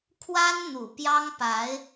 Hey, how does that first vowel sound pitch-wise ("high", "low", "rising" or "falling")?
high